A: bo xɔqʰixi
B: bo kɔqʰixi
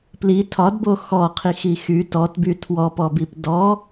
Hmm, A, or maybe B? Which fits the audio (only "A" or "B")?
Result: A